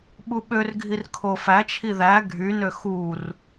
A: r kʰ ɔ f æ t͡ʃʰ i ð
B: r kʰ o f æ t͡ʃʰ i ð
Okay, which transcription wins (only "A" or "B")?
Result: B